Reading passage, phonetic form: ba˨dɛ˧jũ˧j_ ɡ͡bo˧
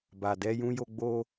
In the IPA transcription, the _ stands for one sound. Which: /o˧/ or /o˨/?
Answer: o˧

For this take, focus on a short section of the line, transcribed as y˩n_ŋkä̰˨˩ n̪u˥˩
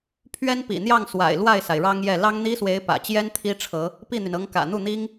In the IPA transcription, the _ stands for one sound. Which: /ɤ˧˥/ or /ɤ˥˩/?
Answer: ɤ˧˥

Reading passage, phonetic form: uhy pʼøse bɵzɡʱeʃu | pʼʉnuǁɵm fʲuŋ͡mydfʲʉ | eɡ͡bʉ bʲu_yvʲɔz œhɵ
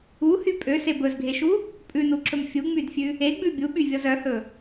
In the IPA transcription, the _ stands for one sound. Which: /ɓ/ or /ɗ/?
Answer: ɓ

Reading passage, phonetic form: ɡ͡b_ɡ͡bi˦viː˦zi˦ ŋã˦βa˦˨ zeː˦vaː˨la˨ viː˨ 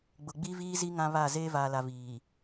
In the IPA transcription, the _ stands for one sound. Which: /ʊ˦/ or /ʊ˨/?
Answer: ʊ˨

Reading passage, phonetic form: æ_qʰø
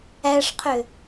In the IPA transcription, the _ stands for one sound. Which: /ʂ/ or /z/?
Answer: ʂ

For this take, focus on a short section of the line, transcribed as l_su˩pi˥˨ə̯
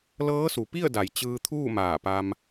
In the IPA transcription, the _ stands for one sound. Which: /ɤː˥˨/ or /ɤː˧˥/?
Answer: ɤː˧˥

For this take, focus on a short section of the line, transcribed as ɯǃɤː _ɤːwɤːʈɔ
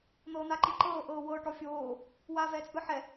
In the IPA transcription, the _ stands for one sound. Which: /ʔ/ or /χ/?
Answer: ʔ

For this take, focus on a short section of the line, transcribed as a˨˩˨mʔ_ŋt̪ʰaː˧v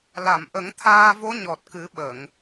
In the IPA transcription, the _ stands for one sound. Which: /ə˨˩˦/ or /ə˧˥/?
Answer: ə˨˩˦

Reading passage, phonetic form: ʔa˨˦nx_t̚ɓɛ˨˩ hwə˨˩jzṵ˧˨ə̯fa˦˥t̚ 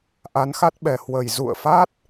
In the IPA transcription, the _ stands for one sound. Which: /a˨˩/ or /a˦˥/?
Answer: a˦˥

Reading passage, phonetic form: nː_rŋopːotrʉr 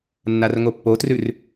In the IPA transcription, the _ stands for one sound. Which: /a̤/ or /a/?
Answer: a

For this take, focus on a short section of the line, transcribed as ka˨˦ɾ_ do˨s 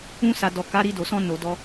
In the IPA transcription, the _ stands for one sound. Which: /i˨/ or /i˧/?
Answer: i˧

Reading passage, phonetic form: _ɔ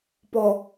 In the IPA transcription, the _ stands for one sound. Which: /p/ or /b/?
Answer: p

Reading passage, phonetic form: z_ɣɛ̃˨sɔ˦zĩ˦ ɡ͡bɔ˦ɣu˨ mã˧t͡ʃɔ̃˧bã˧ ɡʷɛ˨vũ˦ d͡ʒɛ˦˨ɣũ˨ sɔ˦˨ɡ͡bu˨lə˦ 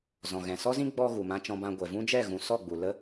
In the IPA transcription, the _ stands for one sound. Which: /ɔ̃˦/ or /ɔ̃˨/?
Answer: ɔ̃˨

